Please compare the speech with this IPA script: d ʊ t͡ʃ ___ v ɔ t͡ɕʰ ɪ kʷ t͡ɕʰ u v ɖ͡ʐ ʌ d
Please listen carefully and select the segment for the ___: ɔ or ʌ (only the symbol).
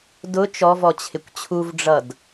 ɔ